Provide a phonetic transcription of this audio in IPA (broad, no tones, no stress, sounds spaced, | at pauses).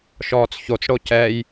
ʃ ɔː t͡s ç o t͡s ɽ o c ɛ j